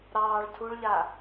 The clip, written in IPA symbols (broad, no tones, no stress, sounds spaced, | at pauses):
ɾ ɑː ɭ tʰ u ɭ ʎ a